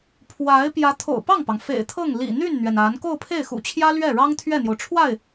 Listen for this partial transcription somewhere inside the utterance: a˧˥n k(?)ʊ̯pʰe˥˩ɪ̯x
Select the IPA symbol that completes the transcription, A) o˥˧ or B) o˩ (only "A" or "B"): A